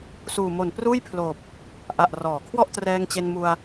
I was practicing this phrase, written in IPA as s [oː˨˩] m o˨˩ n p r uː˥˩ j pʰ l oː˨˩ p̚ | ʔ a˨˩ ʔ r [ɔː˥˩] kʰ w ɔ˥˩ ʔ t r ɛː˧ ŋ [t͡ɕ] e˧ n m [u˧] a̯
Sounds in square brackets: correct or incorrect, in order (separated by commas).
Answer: incorrect, incorrect, correct, correct